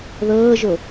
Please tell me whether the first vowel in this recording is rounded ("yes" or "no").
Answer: no